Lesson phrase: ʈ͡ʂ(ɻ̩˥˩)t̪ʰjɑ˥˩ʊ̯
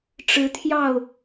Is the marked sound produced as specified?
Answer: no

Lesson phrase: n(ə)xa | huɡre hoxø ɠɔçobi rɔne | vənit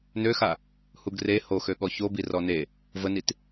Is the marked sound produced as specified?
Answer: no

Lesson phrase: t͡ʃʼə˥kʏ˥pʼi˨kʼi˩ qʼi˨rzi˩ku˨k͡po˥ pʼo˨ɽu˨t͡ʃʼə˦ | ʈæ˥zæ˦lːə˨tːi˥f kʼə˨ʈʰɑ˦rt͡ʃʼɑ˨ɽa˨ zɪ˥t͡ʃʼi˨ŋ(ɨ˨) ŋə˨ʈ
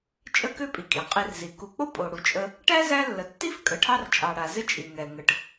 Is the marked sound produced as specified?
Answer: no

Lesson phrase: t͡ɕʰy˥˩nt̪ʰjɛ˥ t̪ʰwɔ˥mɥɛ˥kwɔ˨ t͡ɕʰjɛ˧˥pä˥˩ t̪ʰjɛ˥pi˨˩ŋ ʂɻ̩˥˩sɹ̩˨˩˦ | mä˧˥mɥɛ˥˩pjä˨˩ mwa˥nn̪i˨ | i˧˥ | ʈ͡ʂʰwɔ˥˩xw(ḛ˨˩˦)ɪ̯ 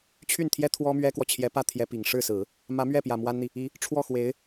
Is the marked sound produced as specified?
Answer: no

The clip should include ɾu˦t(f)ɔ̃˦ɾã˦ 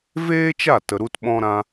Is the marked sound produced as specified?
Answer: no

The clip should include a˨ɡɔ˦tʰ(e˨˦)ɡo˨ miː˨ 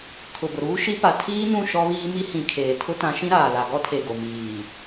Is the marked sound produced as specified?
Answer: no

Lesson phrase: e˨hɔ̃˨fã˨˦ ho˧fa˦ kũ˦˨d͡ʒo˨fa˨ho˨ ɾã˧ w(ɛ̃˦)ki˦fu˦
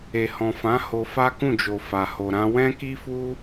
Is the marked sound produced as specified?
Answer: yes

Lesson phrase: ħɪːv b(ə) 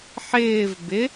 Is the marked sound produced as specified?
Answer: no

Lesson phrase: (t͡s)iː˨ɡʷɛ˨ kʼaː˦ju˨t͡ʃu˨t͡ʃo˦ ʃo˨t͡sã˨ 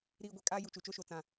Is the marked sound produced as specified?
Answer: no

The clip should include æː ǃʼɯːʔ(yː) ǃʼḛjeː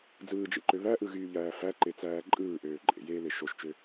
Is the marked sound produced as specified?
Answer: no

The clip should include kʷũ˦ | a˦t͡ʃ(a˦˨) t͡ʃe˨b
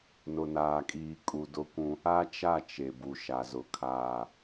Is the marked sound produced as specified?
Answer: yes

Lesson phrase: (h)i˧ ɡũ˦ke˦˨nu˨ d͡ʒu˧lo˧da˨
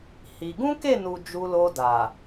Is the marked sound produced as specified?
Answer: yes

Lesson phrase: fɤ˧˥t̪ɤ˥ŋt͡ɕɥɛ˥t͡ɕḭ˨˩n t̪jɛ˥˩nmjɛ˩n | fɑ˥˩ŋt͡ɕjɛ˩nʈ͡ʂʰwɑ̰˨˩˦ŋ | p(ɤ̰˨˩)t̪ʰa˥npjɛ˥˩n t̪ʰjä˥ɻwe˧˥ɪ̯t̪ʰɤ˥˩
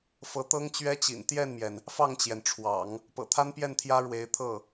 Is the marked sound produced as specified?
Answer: yes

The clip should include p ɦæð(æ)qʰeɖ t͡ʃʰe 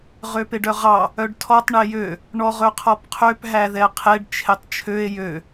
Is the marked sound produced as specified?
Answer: no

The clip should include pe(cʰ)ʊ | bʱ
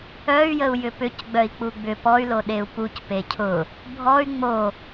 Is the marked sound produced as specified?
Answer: yes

